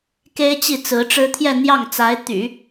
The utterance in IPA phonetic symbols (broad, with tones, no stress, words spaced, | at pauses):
ke˥ɪ̯t͡ɕi˥˩ t͡sɹ̩˧˥ʈ͡ʂɻ̩˥ t̪ʰjɛ˥˧n̪jɑ˥˩ŋt͡sa˧˥ɪ̯ t̪y̰˨˩˦